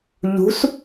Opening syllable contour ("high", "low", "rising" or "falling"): rising